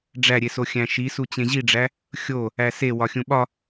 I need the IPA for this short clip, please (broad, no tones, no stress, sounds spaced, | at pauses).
ɖ͡ʐ æ ɾʲ e s o xʲ æ̃ ʃ i s u t͡ɕ ẽ ʑ i ɖ͡ʐ æ | xʲ o | æ s e w ɒ xʲ ũ ɓ ɒ